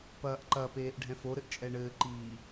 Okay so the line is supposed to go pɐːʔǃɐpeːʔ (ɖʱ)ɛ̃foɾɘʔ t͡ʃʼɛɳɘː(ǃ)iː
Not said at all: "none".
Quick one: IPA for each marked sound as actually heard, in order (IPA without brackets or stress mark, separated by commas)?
ɖʱ, ǃ